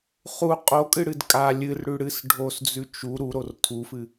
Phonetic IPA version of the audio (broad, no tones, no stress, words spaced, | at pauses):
χu qʼokʼɨɽɨd kʼa lʲɨrɽʉ ɽɨs ɖʱosd͡zʉ t͡ʃu ɾuɾor tʰufɨ